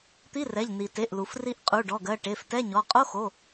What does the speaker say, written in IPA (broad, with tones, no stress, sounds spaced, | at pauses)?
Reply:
t̪ i˧˥˧ r ɛ˩˧˩ ʎ n i˩ t e˩˧˩ ʔ l u˩ f r i˧ ʔ qʼ u˩˧˩ ɖ ɔ˩˧˩ ɡ ɜ˩˧˩ ʈ e˩˧˩ f t ɛ˧˥˧ ɲ ɔ˩˧˩ qʼ o˧˥˧ x o˩˧˩